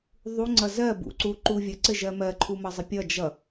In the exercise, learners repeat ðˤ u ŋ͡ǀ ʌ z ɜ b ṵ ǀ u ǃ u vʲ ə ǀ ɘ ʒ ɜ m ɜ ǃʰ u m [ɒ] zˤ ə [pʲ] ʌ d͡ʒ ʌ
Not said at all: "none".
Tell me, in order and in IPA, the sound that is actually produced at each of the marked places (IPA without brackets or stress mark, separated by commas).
ʌ, pʲ